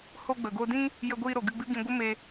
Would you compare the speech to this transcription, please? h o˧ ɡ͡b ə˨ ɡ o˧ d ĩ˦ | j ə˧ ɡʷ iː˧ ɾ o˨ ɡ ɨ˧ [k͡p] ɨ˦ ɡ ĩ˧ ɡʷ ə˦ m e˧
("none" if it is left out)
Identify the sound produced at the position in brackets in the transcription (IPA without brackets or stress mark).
ɡ͡b